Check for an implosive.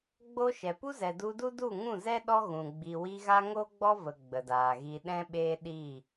present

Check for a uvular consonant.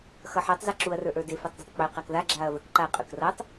present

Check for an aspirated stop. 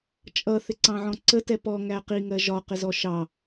absent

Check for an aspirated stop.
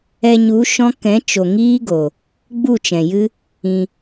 absent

